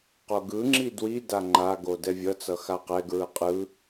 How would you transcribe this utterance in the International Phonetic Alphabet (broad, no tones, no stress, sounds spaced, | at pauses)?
q o ɡ ɯ ŋ͡ǁ i d w i d a ŋ͡ǃ a ɡ o d ɛ vʲ ʌ t͡s ʌ x a q ɛ ɡ ɹ ɯ qʼ ɯ